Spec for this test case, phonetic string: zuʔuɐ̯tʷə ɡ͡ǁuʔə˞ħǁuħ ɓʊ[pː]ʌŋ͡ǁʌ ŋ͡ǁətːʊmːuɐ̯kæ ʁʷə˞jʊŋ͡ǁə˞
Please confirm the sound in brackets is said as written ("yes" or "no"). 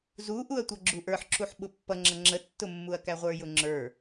yes